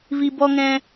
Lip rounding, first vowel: unrounded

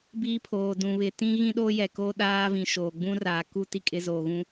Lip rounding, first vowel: unrounded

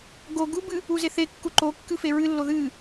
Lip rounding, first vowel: rounded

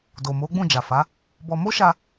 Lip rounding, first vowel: rounded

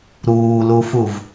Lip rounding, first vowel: rounded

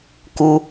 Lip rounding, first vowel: rounded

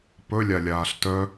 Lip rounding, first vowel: rounded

